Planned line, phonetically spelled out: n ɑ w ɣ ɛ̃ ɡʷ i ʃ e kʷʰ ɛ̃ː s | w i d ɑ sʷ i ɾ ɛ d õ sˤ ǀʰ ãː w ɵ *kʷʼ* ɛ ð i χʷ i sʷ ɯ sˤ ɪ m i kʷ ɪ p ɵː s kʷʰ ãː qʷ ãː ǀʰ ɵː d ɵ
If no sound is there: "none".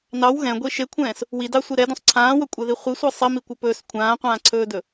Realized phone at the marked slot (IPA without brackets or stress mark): kʷʼ